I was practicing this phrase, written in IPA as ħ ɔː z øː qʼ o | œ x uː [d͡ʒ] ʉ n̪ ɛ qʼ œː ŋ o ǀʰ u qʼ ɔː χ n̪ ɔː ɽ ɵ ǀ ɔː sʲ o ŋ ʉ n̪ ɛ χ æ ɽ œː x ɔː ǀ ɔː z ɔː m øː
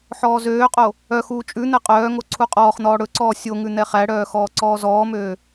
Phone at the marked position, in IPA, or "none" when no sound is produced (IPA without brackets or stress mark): t͡ʃʼ